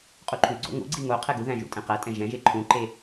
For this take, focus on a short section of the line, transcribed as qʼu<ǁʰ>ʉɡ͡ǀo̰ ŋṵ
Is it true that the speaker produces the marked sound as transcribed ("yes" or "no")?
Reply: no